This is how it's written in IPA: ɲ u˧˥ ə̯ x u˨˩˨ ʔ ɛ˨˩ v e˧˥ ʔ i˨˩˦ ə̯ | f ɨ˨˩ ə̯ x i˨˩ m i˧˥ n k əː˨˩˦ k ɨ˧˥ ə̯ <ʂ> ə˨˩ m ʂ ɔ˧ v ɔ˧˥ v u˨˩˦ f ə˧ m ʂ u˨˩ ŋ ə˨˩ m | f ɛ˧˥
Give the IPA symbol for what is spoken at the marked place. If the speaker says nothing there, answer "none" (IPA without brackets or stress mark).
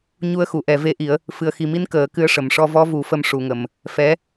ʂ